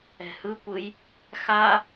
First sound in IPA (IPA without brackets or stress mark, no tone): ɛ̤